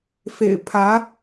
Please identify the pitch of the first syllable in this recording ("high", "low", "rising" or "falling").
low